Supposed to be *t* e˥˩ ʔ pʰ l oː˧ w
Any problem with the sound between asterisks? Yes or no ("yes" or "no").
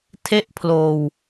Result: yes